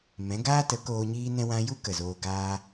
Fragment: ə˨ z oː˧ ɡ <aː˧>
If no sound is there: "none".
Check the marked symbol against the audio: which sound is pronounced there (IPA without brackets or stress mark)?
aː˧